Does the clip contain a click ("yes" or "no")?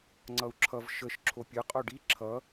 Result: yes